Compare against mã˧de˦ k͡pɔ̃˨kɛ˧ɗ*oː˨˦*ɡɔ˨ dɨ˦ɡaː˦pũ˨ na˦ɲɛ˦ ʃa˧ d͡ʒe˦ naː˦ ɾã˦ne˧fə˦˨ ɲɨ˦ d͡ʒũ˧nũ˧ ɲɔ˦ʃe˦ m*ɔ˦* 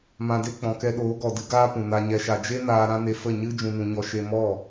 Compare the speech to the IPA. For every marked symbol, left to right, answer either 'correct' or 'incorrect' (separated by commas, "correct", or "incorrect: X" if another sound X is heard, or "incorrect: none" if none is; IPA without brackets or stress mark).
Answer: correct, incorrect: ɔ˦˨